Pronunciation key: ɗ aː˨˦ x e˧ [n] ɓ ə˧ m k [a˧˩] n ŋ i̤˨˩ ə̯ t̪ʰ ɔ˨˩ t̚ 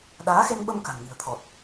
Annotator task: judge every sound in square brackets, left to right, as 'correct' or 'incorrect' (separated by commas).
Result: correct, incorrect